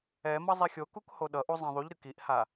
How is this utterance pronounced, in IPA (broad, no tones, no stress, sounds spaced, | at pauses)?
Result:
ɛ m ʌ zˤ e xʲ o k u k h o ɗ ʌ ʔ u zˤ ɛ̃ ðˤ u ʎ ɾ ɯ k i ʔ h a